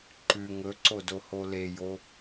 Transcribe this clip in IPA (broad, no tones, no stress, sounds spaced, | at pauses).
ǃ ʉ ŋ ɵ ǀ o d o h o l e j o